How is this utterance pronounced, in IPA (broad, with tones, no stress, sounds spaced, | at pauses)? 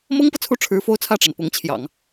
m ɤ˥ ŋ p ɤ˨ t͡sʰ u˥˩ ʈ͡ʂʰ ɻ̩˧˥ f o˥ ʊ̯ t͡sʰ ä˥˩ ʈ͡ʂ a˩ n p ʊ˧˥ ŋ t͡ɕʰ j ɑ̰˨˩˦ ŋ